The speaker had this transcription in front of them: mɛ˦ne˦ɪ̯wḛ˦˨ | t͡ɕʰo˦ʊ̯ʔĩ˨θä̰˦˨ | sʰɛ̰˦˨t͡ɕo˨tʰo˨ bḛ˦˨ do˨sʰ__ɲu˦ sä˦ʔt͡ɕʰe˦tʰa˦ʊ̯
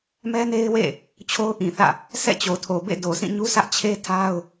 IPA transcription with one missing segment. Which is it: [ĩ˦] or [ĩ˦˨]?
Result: ĩ˦˨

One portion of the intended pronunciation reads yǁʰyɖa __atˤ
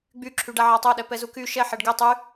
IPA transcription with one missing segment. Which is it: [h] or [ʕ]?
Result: ʕ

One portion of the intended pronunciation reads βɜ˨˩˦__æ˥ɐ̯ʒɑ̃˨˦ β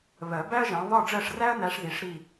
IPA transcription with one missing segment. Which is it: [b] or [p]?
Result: b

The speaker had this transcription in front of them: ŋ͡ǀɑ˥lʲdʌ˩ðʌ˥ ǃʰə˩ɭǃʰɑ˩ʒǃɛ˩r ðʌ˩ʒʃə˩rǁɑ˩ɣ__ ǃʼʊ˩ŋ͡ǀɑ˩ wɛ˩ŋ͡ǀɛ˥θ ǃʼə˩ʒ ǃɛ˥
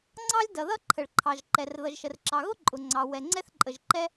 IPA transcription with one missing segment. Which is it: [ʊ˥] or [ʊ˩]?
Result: ʊ˥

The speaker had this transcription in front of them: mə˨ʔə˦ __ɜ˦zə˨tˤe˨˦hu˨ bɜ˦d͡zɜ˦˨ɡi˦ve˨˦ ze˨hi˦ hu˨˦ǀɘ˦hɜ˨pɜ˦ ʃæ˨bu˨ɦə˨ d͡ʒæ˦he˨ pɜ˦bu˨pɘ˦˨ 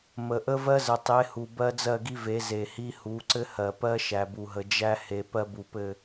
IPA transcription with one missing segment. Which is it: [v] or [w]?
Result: v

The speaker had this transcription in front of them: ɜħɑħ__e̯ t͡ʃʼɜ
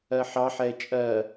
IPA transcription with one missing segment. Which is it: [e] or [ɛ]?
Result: ɛ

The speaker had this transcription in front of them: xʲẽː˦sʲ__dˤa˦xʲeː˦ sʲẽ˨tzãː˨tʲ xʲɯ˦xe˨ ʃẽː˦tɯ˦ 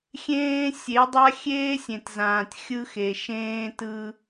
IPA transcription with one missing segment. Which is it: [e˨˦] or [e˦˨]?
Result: e˨˦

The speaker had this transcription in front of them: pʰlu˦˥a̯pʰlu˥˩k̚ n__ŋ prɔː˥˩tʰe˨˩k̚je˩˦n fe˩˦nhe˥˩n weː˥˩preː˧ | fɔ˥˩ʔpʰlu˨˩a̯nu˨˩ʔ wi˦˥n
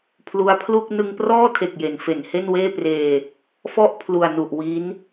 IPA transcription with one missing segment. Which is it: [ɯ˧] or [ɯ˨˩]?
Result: ɯ˧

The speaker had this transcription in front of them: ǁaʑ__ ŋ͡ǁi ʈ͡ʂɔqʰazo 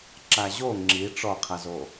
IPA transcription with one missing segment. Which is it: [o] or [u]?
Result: o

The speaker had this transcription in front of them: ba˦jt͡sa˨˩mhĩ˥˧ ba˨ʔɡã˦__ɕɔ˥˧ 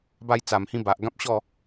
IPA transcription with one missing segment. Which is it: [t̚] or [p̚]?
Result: p̚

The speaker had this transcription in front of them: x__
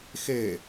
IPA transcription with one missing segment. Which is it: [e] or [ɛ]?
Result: e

